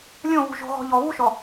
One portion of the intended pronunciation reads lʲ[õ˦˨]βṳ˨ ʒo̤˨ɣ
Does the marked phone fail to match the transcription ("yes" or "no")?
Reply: no